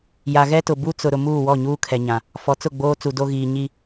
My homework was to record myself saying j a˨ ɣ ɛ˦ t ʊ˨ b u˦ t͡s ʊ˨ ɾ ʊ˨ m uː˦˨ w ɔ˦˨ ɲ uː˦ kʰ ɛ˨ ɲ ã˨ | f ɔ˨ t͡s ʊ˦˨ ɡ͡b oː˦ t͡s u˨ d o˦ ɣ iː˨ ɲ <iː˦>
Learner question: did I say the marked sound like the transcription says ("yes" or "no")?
no